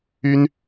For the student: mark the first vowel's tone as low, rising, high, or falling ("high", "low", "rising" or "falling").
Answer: high